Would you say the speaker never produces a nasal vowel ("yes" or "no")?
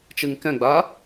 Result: no